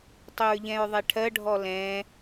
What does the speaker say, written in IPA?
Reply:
tˤ ʊ ɹ ʎ ɛ̃ ɹ ðˤ ɛ ʈʰ ɜ ɖʱ ɔ l ɛ̃

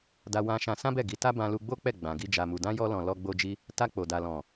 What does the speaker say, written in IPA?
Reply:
d a˧ w ã˧ ʃ ã˧ s ã˦ b ɛ˦˨ ɡ i˨˦ t a˦ b ã˧ l u˧ ɡ͡b o˦ k͡p ɛ˦˨ ɡ͡b ã˨ ɡ i˧ d͡ʒ a˨ m u˨ d ã˧ j ɔ˧ l ɔ̃˨ l ɔ˧ ɡ͡b o˧ d͡ʒ i˧ | t a˧ k͡p o˨ d a˨ l ɔ̃˨

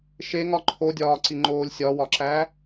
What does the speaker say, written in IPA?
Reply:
ʃ e ŋ ɒ ǃʰ o dʲ ɒː ǀ i ŋ͡ǃ oː lʲ sʲ ɒ w ɒ ǁ æ

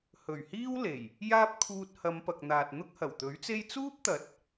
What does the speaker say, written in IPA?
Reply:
h ɵ˨˩ ɥ h iː˥ w l e˨˩ j | j aː˥ p̚ kʰ uː˧ t̚ h ɐ˨˧ m p ɐ˨ k̚ n̪ aː˨ t̚ n̪ ʊ˥ k̚ h ɐ˨˩ w t̪ ɵ˨˥ ɥ t͡s e˥ j t͡s uː˥ p̚ t̪ ɐ˨˥ t̚

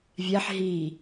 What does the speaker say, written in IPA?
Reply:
vʲ æ ħ ɦ i

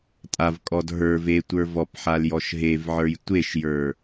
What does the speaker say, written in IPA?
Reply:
tʼ a v kʼ ɔ d ɦ ə˞ v e tʷ ə˞ v ɔ p ħ a l j ɔ ʃ ɦ e v ʕ ə˞ j tʷ e ʃ j ə˞

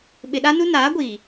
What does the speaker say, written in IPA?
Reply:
ɓ ɪ˨ ɗ a˦ n u˦ n aː˨˦ ɡʷ iː˨

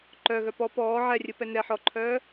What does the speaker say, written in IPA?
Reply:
ǃ œ ɣ œ p ɔ p ɔː ʕ ɛ rʲ ɯ p ɛ n ɛ ħ ɔ ǃʰ œː

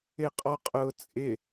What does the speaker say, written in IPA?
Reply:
ɪ qʼ ɔ qʼ ʊː t͡sʼ ɪ

